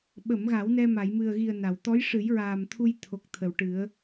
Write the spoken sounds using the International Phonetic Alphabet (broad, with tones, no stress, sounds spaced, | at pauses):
ɓ ə˨˩˨ m ɣ a˨˩˦ w n ɛ˧ m a˨˩˨ j m ɨ˨˩ ə̯ ɣ i˨˩ ə̯ n a˨˩˨ w t̪ ɔ˧˥ j ʂ ɨ˨˩˦ j ɹ aː˨˩ m t̪ʰ u˧ j t̪ʰ o˨˩ k̚ t̪ʰ ə˨˩ w ʈ ɨ˨˩˦ ə̯